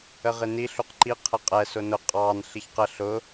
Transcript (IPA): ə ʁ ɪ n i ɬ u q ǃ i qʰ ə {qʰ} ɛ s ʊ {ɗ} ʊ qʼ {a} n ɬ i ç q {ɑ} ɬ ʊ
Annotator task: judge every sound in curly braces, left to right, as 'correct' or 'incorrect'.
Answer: incorrect, incorrect, incorrect, incorrect

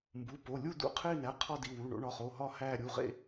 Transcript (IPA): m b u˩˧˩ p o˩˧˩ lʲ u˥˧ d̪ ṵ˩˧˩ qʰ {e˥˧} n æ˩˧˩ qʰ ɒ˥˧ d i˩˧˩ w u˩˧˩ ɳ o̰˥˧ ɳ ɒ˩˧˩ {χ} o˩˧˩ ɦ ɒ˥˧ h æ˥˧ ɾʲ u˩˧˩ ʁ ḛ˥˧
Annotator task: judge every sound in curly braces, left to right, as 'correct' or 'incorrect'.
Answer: correct, correct

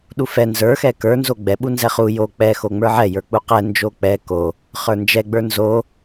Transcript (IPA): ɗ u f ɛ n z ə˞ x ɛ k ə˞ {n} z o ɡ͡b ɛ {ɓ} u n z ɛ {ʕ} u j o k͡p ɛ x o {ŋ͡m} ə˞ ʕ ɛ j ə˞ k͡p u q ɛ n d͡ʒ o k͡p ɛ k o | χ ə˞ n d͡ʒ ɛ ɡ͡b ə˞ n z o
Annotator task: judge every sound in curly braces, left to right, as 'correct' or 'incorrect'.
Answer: correct, correct, incorrect, correct

